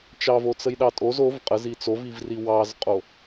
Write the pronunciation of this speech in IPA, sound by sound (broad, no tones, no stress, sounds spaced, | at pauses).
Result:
t͡ʃ ɑ v o t͡s ə j ɗ ɑ tʼ o z o v qʼ ə z i t͡s o v i v r i w ɑ z qʼ o